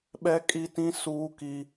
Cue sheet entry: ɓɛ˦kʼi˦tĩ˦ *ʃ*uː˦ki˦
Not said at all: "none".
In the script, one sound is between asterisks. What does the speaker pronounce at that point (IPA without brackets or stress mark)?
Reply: s